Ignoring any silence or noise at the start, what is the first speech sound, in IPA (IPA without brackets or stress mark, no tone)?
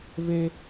v